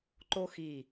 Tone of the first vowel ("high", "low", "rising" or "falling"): high